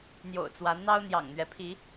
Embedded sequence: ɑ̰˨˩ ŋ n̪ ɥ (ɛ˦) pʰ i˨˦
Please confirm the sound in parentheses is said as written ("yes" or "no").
no